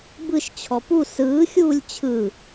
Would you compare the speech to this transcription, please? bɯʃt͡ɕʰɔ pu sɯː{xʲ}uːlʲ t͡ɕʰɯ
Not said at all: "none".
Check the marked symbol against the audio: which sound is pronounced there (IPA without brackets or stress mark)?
xʲ